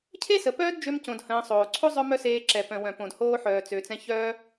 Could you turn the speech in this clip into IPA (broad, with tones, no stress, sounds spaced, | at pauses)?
cʰ e˦ s ə˨ p œː˦ d d͡ʒ ø˧ m c õ˨ d h ə̃ː˧ sˤ oː˨ ǀʰ o˦ zˤ œ˦ m œ˦ s eː˧ ǁ ɛ˨ p œ̃˨ w œ̃˨ p õ˨ d h oː˧ ħ œː˨ t͡s ø˨ t͡s ɛ̃˧ ç œː˦